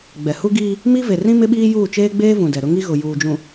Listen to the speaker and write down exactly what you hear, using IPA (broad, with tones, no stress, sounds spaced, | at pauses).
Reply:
ɡ͡b ɛ˨ h u˦ ɡ iː˦ | m i˦ v e˨ r ĩ˦ m ɪ˦ ɓ iː˦ j uː˦˨ t͡ʃ eː˦ ɡ͡b eː˦ v ũ˨ d ɛ˨ ɾ ʊ˦ ŋ i˦ ɣ ʊ˨ j uː˨ d͡ʒ ũ˨